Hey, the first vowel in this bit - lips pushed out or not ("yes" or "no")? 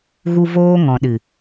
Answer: yes